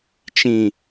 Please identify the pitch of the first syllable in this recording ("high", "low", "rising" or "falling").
low